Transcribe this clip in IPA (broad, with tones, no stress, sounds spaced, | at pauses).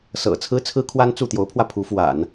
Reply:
s ɤ̰˨˩ t͡sʰ ɹ̩˥ t͡sʰ ɹ̩˥ kʰ w a˥ n t͡s u˥˩ t̪ j o˧˥ ʊ̯ pʰ w ä˧ pʰ u˧˥ f w a̰˨˩˦ n